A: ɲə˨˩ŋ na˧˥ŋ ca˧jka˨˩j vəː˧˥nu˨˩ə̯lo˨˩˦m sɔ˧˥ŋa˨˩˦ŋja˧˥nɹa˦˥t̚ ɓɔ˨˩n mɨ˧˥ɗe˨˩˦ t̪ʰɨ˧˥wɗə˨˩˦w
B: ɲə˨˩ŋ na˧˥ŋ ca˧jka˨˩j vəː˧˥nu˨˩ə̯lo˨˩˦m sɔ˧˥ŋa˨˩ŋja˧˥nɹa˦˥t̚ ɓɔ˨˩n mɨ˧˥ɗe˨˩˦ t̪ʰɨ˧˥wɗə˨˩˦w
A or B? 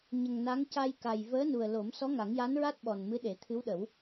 A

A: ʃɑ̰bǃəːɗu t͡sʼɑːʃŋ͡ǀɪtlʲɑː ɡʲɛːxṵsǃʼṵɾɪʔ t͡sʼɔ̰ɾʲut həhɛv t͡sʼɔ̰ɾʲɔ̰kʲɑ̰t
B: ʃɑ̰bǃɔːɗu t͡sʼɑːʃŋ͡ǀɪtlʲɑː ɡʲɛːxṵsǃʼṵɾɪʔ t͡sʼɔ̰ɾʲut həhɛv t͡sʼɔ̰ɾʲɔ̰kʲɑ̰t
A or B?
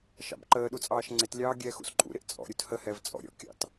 A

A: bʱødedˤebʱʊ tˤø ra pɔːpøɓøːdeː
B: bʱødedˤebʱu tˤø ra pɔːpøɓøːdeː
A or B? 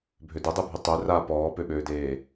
B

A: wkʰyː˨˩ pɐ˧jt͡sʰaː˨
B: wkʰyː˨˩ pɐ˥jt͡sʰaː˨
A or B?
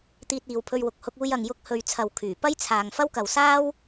B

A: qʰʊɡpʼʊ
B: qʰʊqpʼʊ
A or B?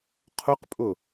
B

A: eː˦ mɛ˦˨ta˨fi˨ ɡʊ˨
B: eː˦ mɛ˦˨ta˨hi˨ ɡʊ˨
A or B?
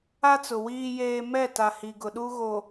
B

